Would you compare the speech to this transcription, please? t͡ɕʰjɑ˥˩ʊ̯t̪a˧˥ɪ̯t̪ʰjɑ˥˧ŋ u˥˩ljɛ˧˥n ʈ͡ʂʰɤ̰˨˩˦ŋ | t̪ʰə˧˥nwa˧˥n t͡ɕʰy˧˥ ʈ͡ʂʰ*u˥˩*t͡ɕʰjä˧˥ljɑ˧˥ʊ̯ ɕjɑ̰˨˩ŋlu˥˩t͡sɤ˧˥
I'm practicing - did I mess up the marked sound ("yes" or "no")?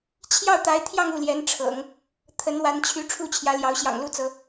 no